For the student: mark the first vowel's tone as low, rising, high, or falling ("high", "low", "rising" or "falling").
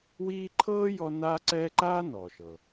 high